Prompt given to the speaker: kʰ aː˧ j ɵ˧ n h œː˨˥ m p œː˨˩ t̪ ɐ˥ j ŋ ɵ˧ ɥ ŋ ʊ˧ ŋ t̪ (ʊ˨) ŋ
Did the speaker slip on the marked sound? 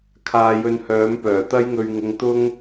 yes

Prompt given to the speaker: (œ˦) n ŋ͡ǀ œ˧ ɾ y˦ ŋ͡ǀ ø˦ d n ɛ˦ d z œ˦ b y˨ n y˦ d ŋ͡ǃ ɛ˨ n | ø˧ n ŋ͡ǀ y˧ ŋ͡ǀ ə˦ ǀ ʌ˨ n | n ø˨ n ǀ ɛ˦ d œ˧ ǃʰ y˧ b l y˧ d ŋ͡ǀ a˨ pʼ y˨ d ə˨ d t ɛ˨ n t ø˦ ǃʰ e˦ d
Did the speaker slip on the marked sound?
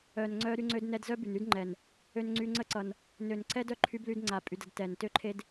yes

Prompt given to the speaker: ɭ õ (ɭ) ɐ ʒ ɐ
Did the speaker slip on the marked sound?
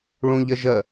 yes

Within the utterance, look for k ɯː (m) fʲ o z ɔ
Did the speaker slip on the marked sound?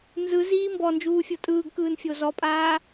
yes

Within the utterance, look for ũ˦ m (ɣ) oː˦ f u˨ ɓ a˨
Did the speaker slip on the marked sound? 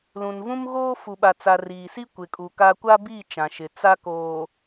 no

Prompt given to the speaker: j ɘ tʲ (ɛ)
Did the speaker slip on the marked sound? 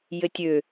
yes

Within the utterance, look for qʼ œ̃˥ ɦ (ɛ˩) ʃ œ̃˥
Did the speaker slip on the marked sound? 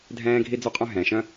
yes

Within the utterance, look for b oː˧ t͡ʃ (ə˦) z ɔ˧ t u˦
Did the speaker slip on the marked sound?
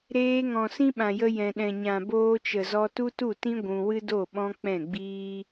yes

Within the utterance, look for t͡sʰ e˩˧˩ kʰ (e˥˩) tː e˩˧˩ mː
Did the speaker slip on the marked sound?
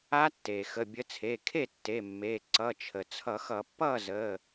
no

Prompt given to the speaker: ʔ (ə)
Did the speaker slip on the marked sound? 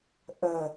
no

